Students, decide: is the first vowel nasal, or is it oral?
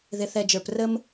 oral